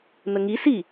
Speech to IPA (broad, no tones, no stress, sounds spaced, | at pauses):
n ə ŋ i s i